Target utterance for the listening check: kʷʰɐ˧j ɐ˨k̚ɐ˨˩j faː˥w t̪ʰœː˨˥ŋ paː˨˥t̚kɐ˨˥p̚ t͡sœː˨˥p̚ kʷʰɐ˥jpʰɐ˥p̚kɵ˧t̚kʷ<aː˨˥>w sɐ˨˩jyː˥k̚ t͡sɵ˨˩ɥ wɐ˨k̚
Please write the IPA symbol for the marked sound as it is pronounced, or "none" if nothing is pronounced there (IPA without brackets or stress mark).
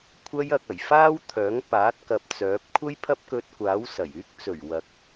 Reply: aː˨˥